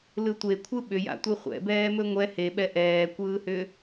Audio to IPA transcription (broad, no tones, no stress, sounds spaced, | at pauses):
l ɯ tʷ e kʷʰ ɯ ɓ ʏ j a̰ tʷ ɯ χʷ ɛ̰ b ɛː m ɵ ŋʷ ɛ h e ɓ ɛ ʔ ɛː kʷ ɯː h ʏː